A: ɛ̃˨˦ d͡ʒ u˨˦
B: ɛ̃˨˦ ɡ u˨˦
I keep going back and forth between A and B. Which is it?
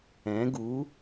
B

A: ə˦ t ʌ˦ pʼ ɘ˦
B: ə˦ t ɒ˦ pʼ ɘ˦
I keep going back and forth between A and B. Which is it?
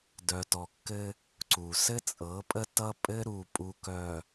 A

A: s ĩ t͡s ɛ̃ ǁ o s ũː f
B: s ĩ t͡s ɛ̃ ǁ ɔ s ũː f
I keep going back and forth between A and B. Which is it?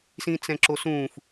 A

